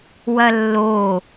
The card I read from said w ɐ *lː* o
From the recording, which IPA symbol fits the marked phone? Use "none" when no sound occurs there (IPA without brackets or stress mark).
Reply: lː